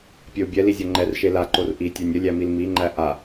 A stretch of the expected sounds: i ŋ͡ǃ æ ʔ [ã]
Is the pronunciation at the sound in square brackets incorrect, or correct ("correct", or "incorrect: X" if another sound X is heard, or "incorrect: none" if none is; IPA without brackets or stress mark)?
incorrect: a